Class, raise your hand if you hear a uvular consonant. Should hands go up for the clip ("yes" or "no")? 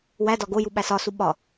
no